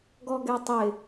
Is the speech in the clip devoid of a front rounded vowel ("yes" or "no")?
yes